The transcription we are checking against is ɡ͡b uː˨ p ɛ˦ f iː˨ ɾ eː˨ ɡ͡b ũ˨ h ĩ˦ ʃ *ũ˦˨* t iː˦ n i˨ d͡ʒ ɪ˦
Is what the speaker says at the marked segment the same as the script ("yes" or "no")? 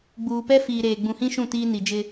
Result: yes